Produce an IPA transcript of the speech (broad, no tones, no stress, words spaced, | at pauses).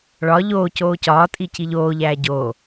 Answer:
ɭɒ ʎoː coːcɒːtʼi ciʎoːʎæː ɟoː